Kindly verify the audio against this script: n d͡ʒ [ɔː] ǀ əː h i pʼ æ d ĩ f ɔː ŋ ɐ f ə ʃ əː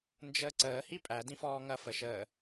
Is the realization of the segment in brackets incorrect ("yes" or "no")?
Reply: yes